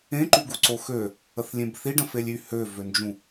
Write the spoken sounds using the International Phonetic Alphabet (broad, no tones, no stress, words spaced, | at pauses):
ẽǃyɡuǀo xø | əθlʲẽbθiɖə̃ felʲy høvønd͡ʒũ